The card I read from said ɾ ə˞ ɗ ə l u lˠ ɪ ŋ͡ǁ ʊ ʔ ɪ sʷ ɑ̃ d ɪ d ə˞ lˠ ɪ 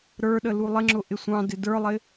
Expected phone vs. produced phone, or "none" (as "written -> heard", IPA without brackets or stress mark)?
none